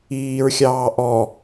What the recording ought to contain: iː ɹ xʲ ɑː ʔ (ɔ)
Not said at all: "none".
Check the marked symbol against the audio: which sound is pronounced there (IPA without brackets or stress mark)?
ɔ